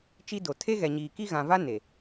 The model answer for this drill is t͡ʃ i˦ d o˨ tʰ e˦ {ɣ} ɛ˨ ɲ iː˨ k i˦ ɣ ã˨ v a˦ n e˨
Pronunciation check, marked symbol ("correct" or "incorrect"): correct